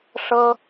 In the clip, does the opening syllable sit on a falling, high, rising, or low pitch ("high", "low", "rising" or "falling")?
high